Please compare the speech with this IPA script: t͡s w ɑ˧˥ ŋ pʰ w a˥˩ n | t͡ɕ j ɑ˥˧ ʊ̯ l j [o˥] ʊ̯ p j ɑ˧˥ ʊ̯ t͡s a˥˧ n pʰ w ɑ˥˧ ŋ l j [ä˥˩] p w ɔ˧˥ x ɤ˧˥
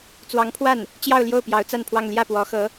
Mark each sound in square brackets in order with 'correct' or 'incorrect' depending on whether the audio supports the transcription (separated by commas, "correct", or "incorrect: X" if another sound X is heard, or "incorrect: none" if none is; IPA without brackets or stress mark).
incorrect: o˥˩, correct